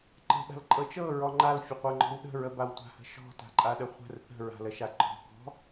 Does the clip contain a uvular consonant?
yes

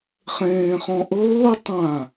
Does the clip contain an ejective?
no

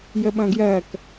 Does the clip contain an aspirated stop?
no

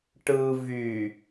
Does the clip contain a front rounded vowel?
yes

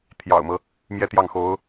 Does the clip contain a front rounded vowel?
no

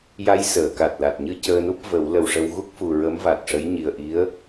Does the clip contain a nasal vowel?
no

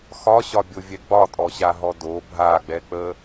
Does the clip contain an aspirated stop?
no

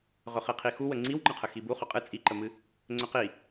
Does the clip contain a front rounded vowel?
yes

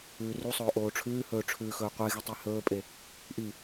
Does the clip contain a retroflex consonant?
yes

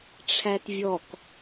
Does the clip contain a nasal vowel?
no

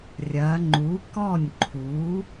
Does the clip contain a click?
yes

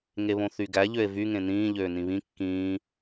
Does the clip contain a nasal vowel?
yes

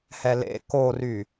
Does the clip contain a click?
no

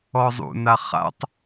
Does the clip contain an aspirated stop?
no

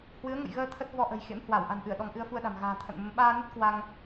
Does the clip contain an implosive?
yes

